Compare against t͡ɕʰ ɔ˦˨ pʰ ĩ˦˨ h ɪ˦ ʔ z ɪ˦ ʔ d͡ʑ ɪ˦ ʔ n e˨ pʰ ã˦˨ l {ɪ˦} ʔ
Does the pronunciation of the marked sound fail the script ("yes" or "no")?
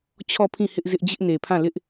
no